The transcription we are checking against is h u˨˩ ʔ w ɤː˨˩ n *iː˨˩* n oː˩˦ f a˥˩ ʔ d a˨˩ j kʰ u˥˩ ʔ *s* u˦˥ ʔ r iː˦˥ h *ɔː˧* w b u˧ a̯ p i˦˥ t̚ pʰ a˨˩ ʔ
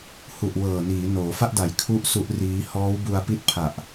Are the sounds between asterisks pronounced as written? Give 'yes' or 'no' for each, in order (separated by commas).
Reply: no, yes, no